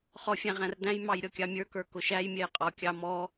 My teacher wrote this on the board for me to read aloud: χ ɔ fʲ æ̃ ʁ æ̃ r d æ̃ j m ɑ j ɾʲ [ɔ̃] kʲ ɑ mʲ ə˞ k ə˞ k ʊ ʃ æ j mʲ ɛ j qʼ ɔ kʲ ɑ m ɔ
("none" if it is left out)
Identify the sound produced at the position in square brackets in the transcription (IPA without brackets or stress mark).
ɔ